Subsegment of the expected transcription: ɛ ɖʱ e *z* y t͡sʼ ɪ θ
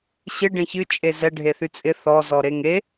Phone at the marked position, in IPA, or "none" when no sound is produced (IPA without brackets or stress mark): θ